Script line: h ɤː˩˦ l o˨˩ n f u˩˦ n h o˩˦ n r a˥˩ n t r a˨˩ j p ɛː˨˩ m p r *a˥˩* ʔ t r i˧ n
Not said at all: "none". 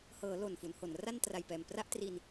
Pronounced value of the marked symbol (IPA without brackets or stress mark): a˥˩